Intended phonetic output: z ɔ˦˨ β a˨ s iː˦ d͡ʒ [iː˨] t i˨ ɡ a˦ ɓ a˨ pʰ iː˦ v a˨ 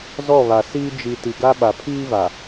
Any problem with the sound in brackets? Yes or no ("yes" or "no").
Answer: yes